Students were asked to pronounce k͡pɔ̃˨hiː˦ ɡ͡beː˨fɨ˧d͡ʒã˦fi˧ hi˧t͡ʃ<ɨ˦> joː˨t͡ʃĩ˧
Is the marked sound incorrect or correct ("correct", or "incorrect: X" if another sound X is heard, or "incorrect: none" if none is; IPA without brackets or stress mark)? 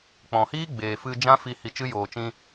correct